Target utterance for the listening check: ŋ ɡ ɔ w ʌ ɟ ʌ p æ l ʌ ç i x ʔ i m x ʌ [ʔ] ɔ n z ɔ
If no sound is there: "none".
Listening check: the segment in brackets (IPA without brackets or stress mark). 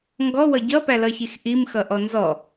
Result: ʔ